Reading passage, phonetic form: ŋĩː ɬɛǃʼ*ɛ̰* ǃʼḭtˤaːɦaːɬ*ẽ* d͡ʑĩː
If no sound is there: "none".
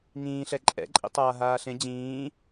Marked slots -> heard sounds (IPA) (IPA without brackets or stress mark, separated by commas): ɛ̰, ẽ